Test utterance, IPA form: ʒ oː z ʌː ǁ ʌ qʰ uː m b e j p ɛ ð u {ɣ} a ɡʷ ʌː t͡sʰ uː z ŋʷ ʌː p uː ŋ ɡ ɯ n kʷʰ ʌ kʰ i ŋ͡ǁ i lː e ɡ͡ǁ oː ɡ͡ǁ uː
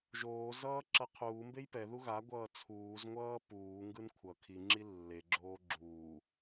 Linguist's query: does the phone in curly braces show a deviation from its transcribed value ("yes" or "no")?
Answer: no